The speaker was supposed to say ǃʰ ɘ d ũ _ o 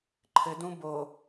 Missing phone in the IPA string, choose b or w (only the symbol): b